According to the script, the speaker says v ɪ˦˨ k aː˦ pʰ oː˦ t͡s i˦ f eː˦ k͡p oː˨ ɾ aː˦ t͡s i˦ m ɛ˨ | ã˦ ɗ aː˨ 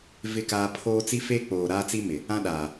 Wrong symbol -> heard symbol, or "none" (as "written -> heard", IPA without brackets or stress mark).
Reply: ɛ˨ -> ɪ˨